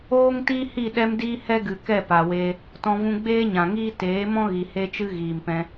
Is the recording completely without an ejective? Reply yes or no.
yes